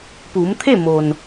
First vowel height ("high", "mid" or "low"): high